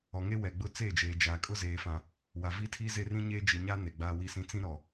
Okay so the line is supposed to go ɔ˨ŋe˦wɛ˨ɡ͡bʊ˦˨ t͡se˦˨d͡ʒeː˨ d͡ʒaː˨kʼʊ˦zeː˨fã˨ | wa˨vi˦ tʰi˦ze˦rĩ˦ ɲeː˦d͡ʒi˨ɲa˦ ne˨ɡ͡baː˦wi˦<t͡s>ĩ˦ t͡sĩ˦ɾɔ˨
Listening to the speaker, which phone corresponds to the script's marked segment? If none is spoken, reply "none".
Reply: s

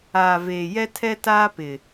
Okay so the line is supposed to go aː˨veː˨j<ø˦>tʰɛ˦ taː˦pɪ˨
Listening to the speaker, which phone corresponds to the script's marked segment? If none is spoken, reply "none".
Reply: ɛ˦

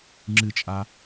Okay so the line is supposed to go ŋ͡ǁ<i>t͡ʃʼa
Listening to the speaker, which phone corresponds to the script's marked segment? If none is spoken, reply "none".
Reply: ɨ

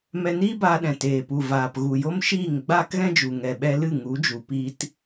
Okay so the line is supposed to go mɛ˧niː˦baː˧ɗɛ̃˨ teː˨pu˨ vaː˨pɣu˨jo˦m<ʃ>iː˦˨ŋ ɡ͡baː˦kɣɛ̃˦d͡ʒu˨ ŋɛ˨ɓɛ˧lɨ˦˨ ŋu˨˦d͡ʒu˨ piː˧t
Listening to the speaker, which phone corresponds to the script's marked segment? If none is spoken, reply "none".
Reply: ʃ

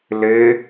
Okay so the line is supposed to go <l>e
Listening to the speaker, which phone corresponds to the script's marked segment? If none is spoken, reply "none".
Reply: l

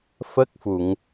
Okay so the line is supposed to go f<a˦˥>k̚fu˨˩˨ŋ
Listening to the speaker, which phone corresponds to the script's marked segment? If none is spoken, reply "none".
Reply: ə˦˥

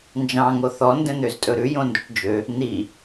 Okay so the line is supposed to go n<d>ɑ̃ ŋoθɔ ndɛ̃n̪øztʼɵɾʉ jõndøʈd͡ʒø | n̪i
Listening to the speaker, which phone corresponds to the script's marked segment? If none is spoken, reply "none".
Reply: d͡ʒ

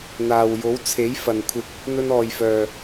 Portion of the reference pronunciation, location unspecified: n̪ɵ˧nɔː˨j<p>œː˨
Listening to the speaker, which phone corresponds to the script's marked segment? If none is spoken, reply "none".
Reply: f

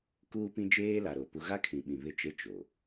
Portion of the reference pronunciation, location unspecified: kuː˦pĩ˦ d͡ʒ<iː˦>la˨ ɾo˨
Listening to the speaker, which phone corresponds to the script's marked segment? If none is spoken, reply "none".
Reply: eː˦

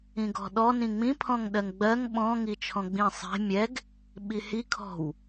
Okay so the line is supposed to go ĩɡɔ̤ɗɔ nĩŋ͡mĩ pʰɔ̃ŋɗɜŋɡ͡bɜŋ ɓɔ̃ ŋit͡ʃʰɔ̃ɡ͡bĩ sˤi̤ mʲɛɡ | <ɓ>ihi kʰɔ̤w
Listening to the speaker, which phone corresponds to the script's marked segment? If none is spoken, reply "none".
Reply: ɓ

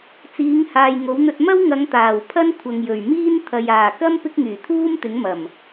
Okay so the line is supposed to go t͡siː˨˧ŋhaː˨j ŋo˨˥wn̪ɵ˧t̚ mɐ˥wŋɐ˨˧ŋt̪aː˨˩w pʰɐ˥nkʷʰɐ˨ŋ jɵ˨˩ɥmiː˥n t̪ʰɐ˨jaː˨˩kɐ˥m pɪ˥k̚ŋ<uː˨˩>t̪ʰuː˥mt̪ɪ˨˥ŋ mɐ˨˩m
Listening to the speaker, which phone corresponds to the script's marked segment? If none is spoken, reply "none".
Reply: yː˨˩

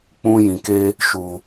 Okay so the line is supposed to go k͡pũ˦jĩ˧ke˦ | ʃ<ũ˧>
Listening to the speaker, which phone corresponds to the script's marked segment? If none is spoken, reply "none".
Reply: u˧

